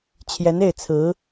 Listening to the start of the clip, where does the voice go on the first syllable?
rising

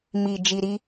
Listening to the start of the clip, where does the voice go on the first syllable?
low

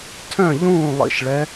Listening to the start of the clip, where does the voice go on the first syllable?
falling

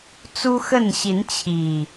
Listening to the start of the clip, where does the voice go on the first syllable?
high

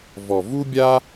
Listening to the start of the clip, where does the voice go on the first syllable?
low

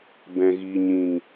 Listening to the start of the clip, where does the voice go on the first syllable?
low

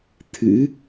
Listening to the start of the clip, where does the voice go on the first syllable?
rising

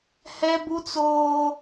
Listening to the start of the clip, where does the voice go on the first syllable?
high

